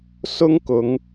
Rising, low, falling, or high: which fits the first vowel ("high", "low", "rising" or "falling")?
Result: high